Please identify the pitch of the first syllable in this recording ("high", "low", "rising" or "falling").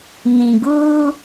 low